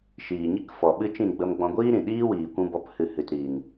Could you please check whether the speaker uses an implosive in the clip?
yes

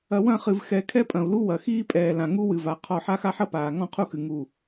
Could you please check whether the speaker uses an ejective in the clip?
yes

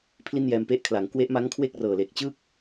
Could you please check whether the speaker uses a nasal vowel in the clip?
no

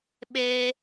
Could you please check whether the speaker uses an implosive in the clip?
yes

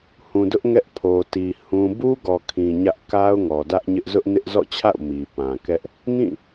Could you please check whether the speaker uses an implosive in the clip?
no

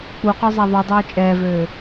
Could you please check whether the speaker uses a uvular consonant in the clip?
yes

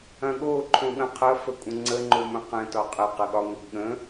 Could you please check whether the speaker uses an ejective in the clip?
yes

